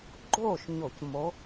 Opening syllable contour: falling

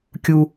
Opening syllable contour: high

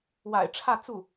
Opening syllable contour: low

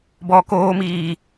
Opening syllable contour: low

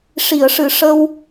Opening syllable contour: low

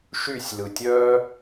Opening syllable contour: falling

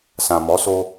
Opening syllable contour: low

